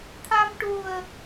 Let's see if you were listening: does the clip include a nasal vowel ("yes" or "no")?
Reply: no